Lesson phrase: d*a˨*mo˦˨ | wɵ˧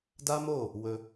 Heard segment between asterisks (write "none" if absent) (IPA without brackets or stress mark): a˦